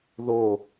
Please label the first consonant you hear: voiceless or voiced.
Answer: voiced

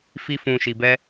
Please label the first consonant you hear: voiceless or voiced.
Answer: voiceless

